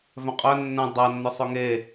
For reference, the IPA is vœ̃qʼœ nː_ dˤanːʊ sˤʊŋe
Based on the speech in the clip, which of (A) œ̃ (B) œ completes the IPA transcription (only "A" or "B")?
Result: A